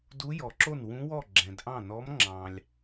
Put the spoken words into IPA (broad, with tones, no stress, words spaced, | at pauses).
du˧˥jɔ˩ǁo˥˩n wũ˧˥wɔ˥˩ ɡ͡ǁɛ̃˩dʔɑ̃˥˩nɔ˧˥m ŋ͡ǁɑ̃˩lʲ